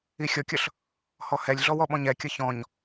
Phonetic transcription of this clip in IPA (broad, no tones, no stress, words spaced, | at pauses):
ixʲɔkʲʌɬ | hɔhɛlʲɮɔw ɔɓɔ̃ɲɛkʲʌ çɔ̃ɲ